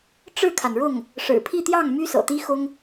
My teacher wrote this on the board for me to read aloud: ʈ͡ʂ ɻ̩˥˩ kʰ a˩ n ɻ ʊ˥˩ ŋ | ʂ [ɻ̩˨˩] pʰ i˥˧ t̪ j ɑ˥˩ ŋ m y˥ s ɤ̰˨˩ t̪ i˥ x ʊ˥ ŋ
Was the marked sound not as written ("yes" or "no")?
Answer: no